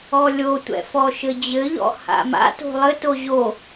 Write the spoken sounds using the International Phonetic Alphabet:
ɔlʲotʷɛ̰ fɔʃɘd͡ʑɘʎɔ̰ ha̰ma̰to̤ lˠɘto ʑo

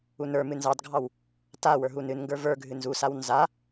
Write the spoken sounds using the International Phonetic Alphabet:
unə˞mɨ nzɑdɡʱɑw | ta wə˞ɦunɨnŋɡə˞ və˞ɡʱɨ nzusaw nza

